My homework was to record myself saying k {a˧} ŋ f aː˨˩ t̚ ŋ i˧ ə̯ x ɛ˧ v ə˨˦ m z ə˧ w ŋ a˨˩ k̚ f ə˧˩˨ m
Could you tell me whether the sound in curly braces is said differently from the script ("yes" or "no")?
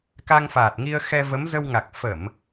no